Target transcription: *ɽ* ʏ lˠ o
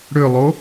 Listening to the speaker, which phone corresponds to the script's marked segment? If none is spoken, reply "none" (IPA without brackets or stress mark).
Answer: ɽ